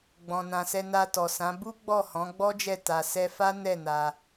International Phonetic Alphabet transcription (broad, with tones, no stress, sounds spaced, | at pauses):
ɡ͡b ɔ̃˨ n ã˨ s ɛ˧ n a˧ t ɔ˨ s ã˨˦ b u˦ ɡ͡b ɔ˦˨ h ɔ̃˨˦ ɡ͡b ɔ˦ d͡ʒ ɛ˦˨ t a˧ s ɛ˦ f a˦ n ɛ˦˨ n a˧